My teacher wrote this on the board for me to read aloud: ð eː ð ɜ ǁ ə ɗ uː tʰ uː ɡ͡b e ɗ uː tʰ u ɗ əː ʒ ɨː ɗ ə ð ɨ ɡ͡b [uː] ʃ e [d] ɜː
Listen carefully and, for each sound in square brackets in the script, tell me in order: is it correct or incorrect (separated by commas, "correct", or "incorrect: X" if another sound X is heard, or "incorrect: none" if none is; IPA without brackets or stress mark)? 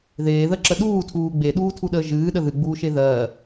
correct, incorrect: ð